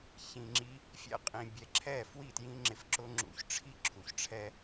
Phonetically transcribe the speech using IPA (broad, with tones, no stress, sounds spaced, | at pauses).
ç ĩ˨ ŋ͡ǁ i˧ | fʲ ɛ̰˦ qʼ ĩ˨ bʲ ɛ˨ ǁʰ ɛ˦˨ f w i˦˨ t j ĩ˦ ŋ͡ǁ ɪ˧ f ǁ ʊ˦ ŋ͡ǁ ṵ˧ ç ʈ͡ʂʰ i˦ ǁʰ u˨ ç ʈ͡ʂʰ ɛ˦